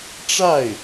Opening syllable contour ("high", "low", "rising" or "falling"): falling